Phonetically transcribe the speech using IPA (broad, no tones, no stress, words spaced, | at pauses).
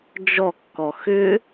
d͡ʒɔkːɔ xʏ